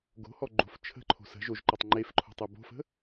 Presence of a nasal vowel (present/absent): absent